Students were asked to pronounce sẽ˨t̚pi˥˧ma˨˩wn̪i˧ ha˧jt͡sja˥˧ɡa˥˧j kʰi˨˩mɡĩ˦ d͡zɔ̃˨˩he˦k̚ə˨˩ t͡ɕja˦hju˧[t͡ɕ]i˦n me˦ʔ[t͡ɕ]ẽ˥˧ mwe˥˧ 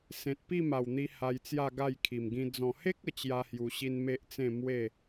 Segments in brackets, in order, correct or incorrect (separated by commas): incorrect, incorrect